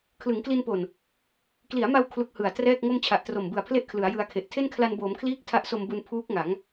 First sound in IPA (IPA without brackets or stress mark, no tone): kʰ